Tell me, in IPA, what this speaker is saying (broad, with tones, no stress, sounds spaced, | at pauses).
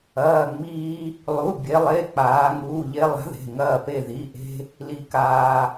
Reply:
ɐː˩˧˩ ŋ͡m iː˧ | lˠ u˩˧˩ bʲ e˩˧ lˠ e˩˧˩ k͡p aː˩˧ ŋ uː˩˧˩ ʎ e˧ lˠ a̤˨˥ ð e̤˩˧˩ ŋ ɐː˧˩ p e˧˩ ð i˩˧˩ ʔ e̤˧ | l i˧ k aː˧